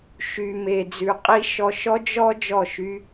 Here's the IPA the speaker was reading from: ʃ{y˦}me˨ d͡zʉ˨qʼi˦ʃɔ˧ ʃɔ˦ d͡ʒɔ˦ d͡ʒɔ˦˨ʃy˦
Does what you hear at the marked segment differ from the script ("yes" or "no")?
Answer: yes